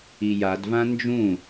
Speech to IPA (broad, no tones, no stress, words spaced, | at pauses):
ijadvã nd͡ʒũ